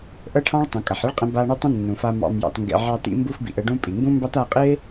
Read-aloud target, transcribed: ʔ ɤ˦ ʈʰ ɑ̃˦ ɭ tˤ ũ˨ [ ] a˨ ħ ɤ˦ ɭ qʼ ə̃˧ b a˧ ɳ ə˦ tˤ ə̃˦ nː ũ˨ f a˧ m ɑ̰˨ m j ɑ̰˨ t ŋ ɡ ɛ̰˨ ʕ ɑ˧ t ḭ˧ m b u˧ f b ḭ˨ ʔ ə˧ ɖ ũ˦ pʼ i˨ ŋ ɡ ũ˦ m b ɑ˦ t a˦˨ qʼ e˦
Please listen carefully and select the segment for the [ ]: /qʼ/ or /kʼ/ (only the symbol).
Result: kʼ